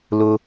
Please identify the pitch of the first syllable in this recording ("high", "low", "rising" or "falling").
high